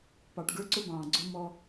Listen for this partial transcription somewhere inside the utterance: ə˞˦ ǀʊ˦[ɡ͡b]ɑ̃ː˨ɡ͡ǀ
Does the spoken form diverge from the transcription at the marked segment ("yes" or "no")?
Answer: yes